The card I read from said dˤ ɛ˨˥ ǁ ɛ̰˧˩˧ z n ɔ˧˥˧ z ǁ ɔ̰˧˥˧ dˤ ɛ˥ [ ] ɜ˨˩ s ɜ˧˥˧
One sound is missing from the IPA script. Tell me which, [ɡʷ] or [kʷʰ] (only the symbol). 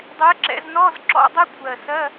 kʷʰ